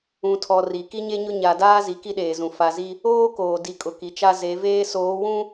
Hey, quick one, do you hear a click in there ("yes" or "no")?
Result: no